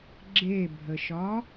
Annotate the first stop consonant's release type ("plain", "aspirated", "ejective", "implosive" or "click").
click